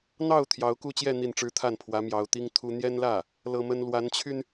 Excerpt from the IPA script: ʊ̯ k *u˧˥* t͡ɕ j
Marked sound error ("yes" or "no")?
yes